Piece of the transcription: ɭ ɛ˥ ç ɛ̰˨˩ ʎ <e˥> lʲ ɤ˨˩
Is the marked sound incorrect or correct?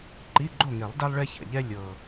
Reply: incorrect